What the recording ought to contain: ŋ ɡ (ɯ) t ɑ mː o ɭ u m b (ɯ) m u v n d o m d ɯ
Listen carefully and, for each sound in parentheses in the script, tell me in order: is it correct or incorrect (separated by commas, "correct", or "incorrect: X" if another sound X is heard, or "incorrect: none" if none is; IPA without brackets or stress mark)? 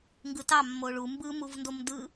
correct, correct